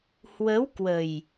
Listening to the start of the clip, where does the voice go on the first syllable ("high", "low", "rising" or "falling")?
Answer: rising